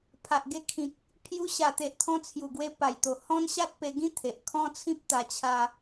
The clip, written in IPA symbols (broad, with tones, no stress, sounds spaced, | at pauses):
pʰ a˨ ʔ ɡ e˧ kʰ ĩ˨ k̚ | pʰ j u˧ ɕ a˨˩ t̪ e˨ ʔ t̪ʰ ɔ̃˧ t͡sʰ j u˨˩ ɡ w e˧ p a˨˩ j t̪ o˨˩ h ɔ̃˦ n ɕ a˦ t̚ p e˧ ɡ ĩ˦ t̪ʰ e˨ ʔ kʰ ɔ̃˦ t͡sʰ ĩ˦ p̚ t̪ a˧ t͡ɕʰ a˧